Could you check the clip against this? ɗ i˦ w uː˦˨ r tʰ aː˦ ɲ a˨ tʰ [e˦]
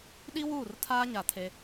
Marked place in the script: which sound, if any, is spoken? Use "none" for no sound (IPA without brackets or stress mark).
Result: e˦